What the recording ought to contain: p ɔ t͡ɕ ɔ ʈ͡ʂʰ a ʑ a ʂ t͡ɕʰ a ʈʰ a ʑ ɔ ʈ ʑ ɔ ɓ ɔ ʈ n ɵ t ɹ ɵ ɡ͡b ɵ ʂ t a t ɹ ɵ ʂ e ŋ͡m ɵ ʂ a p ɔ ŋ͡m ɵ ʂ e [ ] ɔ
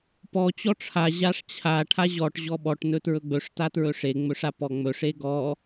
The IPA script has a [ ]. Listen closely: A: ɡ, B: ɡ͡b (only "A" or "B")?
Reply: A